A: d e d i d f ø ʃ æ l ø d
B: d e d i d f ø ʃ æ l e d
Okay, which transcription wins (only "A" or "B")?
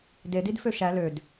A